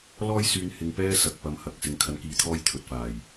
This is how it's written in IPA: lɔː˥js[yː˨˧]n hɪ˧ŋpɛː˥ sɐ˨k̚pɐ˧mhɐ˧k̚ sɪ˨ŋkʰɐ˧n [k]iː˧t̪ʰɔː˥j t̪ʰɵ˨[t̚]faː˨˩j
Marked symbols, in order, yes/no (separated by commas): no, yes, yes